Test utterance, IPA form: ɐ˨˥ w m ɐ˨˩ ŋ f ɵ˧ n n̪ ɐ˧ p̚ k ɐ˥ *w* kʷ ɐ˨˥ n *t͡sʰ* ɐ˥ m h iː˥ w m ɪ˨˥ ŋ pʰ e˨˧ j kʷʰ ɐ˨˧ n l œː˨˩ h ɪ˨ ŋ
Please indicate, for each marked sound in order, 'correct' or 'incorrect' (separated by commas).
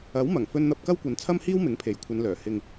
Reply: correct, correct